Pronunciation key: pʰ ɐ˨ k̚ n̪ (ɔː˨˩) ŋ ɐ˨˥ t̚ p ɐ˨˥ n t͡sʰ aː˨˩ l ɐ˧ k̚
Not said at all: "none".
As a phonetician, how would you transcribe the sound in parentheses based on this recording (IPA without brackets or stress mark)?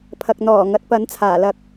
ɔː˨˩